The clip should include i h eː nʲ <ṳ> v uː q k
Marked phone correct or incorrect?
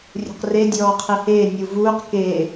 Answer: incorrect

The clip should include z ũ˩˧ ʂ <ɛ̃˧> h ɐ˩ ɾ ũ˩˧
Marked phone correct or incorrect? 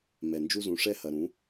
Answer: incorrect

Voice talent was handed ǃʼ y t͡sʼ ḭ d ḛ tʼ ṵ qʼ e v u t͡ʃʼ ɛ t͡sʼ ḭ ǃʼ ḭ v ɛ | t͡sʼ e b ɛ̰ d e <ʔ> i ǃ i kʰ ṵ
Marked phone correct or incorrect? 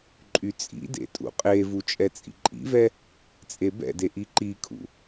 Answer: correct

